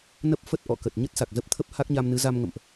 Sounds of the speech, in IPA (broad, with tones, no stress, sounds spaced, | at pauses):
n ə˦˥ p̚ f ə˦˥ t̚ ʔ ɔ̰˧˨ k ə˨˩ t̚ ɲ ə˦˥ t̚ s a˨˩ k̚ z ə˦˥ p̚ t̪ʰ ə˦˥ p̚ h a˦˥ k̚ ɲ a˧ m n ɨ˨˦ z a˧ m ŋ ə̰˧˨ m ʔ